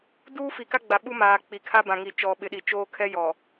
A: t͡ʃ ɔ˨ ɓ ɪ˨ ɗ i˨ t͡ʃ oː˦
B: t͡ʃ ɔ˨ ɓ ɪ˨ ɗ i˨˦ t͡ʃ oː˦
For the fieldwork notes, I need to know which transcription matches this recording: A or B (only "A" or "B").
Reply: A